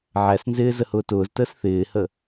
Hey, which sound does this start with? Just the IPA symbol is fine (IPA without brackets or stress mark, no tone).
ʕ